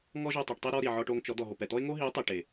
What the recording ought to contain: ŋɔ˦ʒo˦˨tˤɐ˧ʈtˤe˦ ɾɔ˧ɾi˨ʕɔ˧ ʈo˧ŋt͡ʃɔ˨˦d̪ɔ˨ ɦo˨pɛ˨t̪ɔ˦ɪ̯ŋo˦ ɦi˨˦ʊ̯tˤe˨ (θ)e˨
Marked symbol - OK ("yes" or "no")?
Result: no